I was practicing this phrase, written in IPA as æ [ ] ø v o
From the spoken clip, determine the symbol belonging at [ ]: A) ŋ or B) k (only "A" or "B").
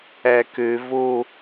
B